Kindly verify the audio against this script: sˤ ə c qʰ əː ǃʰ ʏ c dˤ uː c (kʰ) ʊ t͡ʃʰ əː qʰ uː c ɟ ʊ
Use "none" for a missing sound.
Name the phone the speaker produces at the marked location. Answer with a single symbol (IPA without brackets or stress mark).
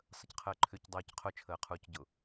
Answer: qʰ